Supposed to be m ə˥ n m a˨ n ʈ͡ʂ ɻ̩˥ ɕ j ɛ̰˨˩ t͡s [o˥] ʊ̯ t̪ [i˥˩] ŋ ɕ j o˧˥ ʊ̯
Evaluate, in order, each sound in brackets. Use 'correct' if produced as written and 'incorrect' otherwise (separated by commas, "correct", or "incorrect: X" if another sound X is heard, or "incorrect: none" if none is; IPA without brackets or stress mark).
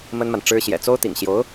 correct, incorrect: ḭ˨˩